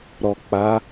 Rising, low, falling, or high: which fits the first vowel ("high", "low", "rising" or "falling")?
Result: low